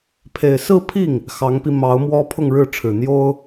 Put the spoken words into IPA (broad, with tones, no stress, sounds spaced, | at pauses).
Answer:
pʰ e˨˩ ɪ̯ s ɹ̩˥˧ pʰ i˥˩ ŋ | x ɑ˧˥ ŋ p i˧ m ɑ˧˥ ʊ̯ m w ɔ˥ pʰ ʊ˥˧ ŋ ɻ ɻ̩˥˩ ʈ͡ʂʰ ɻ̩˨˩ n̪ j o˥ ʊ̯